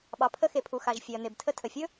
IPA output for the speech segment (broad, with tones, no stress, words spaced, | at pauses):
ɓɑ˩pʰə˧xe˩pʰu˩ xa˩ʒ fʲe˩ɐ̯n̪e˩btʰə˧ tʰə˩fʲɵ˥